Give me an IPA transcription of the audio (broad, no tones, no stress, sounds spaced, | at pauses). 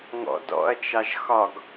ŋ ɔ̰ d ɔ̰ ɐ̯ t͡ʃ ɑ ʒ x ɒ ɡ